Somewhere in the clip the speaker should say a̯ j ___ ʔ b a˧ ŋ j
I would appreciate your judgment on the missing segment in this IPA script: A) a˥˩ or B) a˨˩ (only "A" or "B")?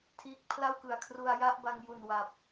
A